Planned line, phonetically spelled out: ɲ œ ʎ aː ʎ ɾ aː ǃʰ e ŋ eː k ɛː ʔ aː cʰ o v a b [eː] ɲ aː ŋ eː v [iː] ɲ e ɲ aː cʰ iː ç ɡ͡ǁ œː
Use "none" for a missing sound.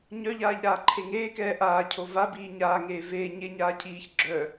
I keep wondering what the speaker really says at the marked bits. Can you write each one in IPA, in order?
iː, eː

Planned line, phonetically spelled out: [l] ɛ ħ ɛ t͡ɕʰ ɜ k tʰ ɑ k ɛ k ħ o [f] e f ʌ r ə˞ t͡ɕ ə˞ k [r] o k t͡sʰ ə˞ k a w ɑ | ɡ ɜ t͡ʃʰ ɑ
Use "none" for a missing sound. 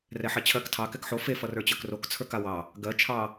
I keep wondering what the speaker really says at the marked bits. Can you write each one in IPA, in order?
r, f, r

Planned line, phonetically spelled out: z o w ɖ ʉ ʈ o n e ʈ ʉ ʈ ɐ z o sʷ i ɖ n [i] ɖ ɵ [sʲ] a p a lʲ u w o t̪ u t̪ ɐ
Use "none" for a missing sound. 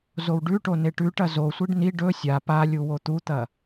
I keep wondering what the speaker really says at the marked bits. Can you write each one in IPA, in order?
i, sʲ

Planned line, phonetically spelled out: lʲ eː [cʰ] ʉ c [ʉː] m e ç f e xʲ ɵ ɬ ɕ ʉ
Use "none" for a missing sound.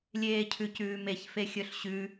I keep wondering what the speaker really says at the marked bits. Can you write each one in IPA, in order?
cʰ, ʉː

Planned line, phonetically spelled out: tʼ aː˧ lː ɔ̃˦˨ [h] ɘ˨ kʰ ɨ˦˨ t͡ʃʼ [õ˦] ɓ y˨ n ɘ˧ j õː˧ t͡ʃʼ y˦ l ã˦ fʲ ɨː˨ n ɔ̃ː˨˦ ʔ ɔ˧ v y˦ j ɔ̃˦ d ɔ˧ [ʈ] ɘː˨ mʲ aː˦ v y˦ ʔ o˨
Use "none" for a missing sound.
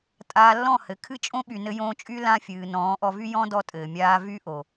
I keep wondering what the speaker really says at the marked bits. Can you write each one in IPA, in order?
h, õ˦, tʼ

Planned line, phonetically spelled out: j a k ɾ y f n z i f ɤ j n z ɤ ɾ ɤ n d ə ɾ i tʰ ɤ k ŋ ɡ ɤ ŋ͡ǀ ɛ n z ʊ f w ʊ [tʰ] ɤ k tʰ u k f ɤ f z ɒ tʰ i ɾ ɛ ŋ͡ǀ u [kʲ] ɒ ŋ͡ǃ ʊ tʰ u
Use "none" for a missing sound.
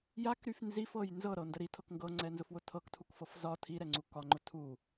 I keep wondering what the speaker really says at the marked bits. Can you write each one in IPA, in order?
tʰ, k

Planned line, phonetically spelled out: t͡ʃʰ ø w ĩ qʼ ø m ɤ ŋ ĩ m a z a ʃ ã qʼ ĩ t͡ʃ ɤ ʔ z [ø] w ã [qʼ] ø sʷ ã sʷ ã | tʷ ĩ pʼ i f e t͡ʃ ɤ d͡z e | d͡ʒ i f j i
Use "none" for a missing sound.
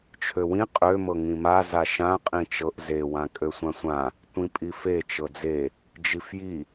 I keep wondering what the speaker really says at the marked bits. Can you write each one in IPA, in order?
e, kʼ

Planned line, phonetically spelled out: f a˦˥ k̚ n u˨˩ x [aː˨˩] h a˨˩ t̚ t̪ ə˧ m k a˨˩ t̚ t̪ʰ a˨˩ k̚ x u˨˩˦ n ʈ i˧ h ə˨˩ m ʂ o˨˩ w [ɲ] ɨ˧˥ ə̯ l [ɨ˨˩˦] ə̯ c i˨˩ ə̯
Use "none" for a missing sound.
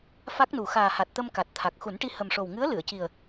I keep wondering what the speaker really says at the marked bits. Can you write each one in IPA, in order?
aː˨˩, ŋ, ɨ˨˩˨

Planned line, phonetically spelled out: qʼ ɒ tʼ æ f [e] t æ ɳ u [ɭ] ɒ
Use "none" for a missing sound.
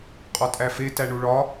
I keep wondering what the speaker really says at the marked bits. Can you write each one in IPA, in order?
e, ɭ

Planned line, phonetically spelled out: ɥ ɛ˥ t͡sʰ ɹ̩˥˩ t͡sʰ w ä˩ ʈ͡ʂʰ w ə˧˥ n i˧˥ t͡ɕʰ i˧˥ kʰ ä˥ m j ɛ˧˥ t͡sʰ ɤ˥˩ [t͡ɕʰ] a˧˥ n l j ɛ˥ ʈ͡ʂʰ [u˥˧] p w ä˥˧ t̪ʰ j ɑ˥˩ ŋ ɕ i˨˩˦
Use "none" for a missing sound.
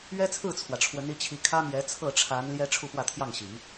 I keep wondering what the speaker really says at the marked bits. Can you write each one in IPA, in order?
ʈ͡ʂʰ, u˥˧

